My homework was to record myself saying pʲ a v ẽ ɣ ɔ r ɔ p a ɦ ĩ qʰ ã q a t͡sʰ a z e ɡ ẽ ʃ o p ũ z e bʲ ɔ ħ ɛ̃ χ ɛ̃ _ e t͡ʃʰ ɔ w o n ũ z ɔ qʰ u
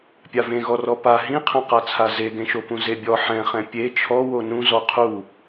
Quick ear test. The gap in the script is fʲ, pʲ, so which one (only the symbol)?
pʲ